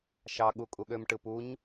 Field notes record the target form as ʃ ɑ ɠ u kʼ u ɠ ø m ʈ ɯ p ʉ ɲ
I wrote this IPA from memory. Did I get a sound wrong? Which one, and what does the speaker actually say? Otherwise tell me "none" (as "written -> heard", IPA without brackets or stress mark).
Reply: ʉ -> u